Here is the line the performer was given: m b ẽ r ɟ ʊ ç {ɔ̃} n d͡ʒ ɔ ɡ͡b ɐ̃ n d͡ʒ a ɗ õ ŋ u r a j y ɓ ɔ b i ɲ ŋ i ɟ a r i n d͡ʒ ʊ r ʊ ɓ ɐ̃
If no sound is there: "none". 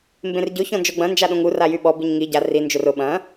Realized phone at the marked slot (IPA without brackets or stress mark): ɔ̃